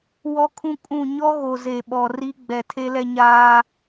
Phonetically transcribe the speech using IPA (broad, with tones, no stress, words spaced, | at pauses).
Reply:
wɔ˦kʰũ˦kʼũ˦˨ ɲɔ˦ɣo˨ ze˨ ɓɔ˨ri˦ ɡ͡bɛ˨tʰe˦lɛ˦ɲaː˦